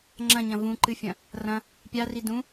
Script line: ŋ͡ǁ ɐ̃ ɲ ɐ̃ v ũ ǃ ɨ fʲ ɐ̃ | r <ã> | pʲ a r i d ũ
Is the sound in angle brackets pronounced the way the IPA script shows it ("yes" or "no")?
no